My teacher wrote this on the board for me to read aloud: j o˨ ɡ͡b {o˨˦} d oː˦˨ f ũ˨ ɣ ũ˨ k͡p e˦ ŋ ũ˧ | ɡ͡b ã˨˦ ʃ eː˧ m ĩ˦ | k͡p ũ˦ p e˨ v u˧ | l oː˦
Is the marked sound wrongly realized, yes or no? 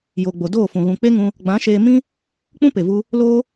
yes